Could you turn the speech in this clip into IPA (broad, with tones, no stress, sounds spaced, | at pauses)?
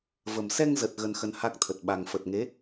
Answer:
v ə˨˩ m s ɛ˧ ŋ z ə˨˩ t̚ ɣ ə˧ n x ə˧ n h a˦˥ k̚ t̪ʰ ə˨˩ t̚ ɓ a˨˩ ŋ f ə˨˩ t̚ ŋ e˨˦